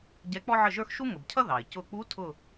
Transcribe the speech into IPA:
ɟ ɛ˧˥ k͡p ɔ˥ ʕ ə˥˨ ʒ ə˞˥ x ʃ u˥ ŋ ə˩ b cʰ ʌ˥ ð ɑ˩ ɪ̯ c ʊ˧˩ k͡p u˧˥ tʰ ʊ˥˨

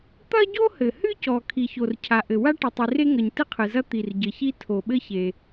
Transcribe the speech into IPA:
t̪ ɐ˥ ɟ o˥ h ɘ˩ h ɨ˥ c ɔ˩ kʰ i˩ ç o˩ r cʰ a˩ ʔ ɘ˩ w a˥ ʈ ɘ˩ tˤ i˩ r e˥ ŋ ɐ˩ ɲ t ɨ˥ qʰ ɨ˩ z ɐ˥ t̪ i˩ r ɟ ɘ˩ ç i˥ tʰ o˩ ɓ ɘ˥ ç e˩

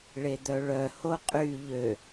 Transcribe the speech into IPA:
ɭ e d̪ œ ɭ œ h o qʼ y ʎ ø

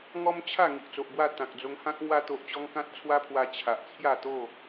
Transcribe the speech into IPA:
ŋ ɔ˦ m t͡ɕʰ a˥˧ ŋ i˨ ʔ t͡s o˨ ʔ b w a˥˧ t̪ ã˨ k̚ d͡z o˧ ŋ h ã˦ k̚ ŋ w a˧ t̪ o˨ ʔ t͡ɕ ɔ˧ ŋ k ã˦ t̚ t͡sʰ w a˦ pʰ w a˧ t͡ɕʰ a˨ ʔ t͡sʰ j a˥˧ t̪ o˥˧

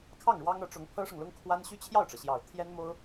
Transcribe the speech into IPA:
kʰ ɑ˥˩ ŋ ɻ w ɑ˥ ŋ ɤ˧˥ ʈ͡ʂ ʊ˧˥ ŋ pʰ ɤ˥ ʂ ɤ˨ ŋ l ʊ˥ ŋ kʰ w a˥ n ɕ y˥ t͡ɕʰ j ɑ˥˩ ʊ̯ ʈ͡ʂ ɤ˩ ɕ j ɑ˨˩ ʊ̯ t̪ʰ j ɛ˥ n m o˥ ʊ̯

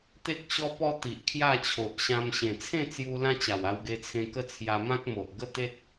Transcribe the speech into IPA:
t̪ e˦ k̚ ɕ ɔ˦ p ɔ˦ t̪ i˨ ʔ kʰ j a˥˧ t͡ɕʰ o˨ ʔ ɕ ã˧ m ɕ ẽ˨˩ t͡sʰ ẽ˥˧ t͡s j u˧ l ã˦ t͡ɕ a˨˩ w a˧ w ɡ e˧ t͡sʰ ẽ˧ k ə˦ t͡sʰ j a˧ m ã˦ k̚ m o˨ ʔ ɡ ə˦ t̪ e˦ t̚

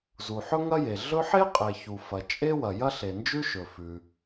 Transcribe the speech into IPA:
z u˩ ħ ɵ˥ ŋ ɐ˥ j e˩ ɮ ɵ˥ ħ e˥ qʼ e˩ ç u˩ f ɐ˩ t͡ʃʼ e˥ w ɐ˩ j ɐ˥ ɬ e˩ n d͡ʒ ʉ˥ ʃ ɵ˩ f ʉ˩

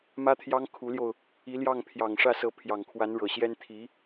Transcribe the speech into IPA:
m ä˥ t̪ʰ j ɑ˥ ŋ kʰ u˧˥ l j o˧ ʊ̯ | i˧˥ l j ɑ˥˩ ŋ pʰ j ɑ˨˩ ŋ ʂ ä˥˩ s ɤ˧˥ pʰ j ɑ˨˩ ŋ kʰ w a˧˥ n ɻ ɤ˨˩ ɕ j ɛ˥ n t̪ʰ i˧˥

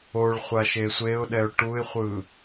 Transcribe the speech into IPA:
o ɭ χʷ a ʃ e sʷ e ʊ̯ ɗ ɛ ʊ̯ ʈ u ɪ̯ χʷ ɯ

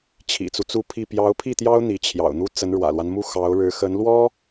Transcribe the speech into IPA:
t͡ɕʰ ḭ˨˩ t͡s u˦ t͡s u˥˧ pʰ i˥˩ p j ɑ˧˥ ʊ̯ pʰ i˥˩ t̪ j ɑ˥ ʊ̯ n̪ i˧˥ t͡ɕʰ j ɑ̰˨˩ ʊ̯ n̪ u˥ t͡s ə˧˥ n ɻ w ä̰˨˩ l w a˦ n m u˥˩ x ɑ˧˥ ʊ̯ ɻ ɻ̩˧˥ x ə˧˥ n l w ɔ˥

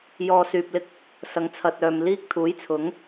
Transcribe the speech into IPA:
j ɔː˧ s yː˧ p̚ l ɪ˥ k̚ | s ɐ˨˧ ŋ t͡sʰ ɐ˨ t̚ œː˨ m l iː˥ k̚ t̪ʰ uː˨˥ j t͡sʰ ʊ˨˥ ŋ

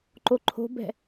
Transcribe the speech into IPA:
ǃ o ǃʰ o̤ b ɛ̤

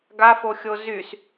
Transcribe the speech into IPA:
ɡ a f o xʲ o z y s

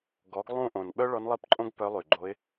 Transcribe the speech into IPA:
ɡ ɔ˩˥ ɡ lˠ ũ˥˨ ʔ õ˨˩ n ɓ œ˥ ɭ ɔ˧˥ n lˠ i˥˨ p ǃʼ õ˥ ɡ p œ˧˥ lˠ y˨˩ ɡ͡ǃ o˧˥ ɪ̯

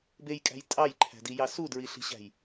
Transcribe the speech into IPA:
b e j kʼ æ̤ j tʼ ɑ j ǃʰ æ̤ d i j ɑ s u d ɹ i ɬ i̤ ɕ æ̤ j

